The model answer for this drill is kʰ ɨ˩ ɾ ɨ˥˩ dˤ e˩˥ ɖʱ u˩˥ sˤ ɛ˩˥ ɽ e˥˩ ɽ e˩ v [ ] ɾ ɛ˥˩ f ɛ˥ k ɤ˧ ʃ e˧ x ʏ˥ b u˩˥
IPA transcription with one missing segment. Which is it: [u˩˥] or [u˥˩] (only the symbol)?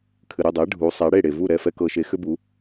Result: u˥˩